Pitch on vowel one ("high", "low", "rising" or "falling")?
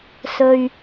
low